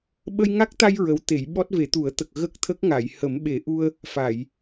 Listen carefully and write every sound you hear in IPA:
ɓ ə˧ j ŋ a˦˥ k̚ t̪ a˧ j ɹ ə˧˥ w t̪ e˨˩˦ j ɓ ɔ˦˥ t̚ v e˨˩˦ t̪ u˨˩˦ ə̯ t̪ ə˨˩ k̚ ɣ ə˦˥ k̚ t̪ʰ ə˦˥ k̚ ŋ a˨˩˨ j h ə˨˩˦ m ɓ e˨˩˦ ʔ u˧ ə̯ | f a˨˩˨ j

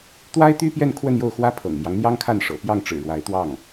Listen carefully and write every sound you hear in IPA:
t̪ w a˥ ɪ̯ t̪ y˥ p j ɛ˥˧ n kʰ w ə˥˧ n j o˥˩ ʊ̯ x w ä˥ pʰ ɤ̰˨˩ ŋ m j ɑ˦ ŋ n̪ j ɑ˥ ŋ kʰ a˥˩ n ʂ ɤ̰˨˩ p j ɑ˥˩ ŋ ʈ͡ʂ ɻ̩˨˩ ɻ w a˧˥ ɪ̯ t̪ w ɑ˥˩ ŋ

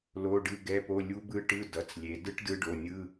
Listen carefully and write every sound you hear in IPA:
l o˧˥˧ ɖ ɯ˧˥˧ ɡ ɛ˧˥˧ p o˧˥˧ lʲ u˦˥ b ɯ˦˥ ʈ ɯ˧˥˧ d ʌ˩˧˩ t͡s lʲ e˩˧ d ɯ˦˥ ʈ d ɯ˦˥ ɖ o˩˧˩ nʲ ɯ˧˥˧

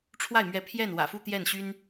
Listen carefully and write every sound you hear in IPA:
ʈ͡ʂʰ w a˥˩ ɪ̯ m ɥ ɛ˧˥ pʰ j ɛ˥˩ n w ä̰˨˩ f u˥˧ t̪ j ɛ˥˩ n ɕ y˥ n

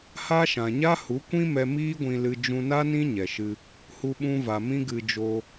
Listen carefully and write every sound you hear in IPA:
h a˦ ʃ ã˨ ɲ a˦ h u˨˦ kʷ ĩ˦ m ɛ˧ m iː˦ ɡʷ ĩ˧ l ɨ˧ d͡ʒ ũ˧ n a˦ n ĩ˦ ɲ ɛ˨ ʃ ɨ˧ | h u˧ ɓ ũ˧ v a˨ m ĩ˦ ɡ ɨ˧ d͡ʒ o˧

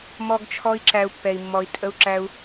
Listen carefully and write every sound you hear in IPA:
m ɔ˦ ɡ t͡ʃʰ ɔ˦ i̯ ǁ æ˦ u̯ pː ɛ˧ i̯ mː ɔ˧ i̯ tʼ ə˦ u̯ ǁ æ˦ u̯

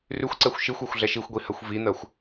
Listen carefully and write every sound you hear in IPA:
r ʉ xʷ ǀ ɛ xʷ ʃ i xʷ e xʷ ɮ ɛ ʃ i xʷ ɡʷ i h ɜ xʷ v i n̪ ɜ xʷ

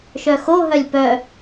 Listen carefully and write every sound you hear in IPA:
ʃ œ x o ɦ œ lʲ p œ

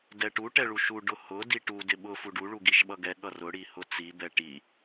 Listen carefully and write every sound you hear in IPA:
d ɛ ʈ u ʈ ɛ ɭ u ʃ u ɖ ʊ h ʊ d i ʈ u d ɪ ɓ ʊ f u ɖ u ɭ u ɡ i ʃ ɓ ʌ ɡ ɛ ɠ ʌ r ʊ ɽ i h ʊ t͡s i b ɛ ʈ i

